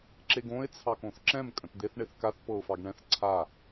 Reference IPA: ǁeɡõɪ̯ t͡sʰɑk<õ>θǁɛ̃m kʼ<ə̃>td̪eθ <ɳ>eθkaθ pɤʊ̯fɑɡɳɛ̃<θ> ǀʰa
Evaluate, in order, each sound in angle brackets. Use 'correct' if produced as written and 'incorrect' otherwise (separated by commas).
correct, correct, correct, correct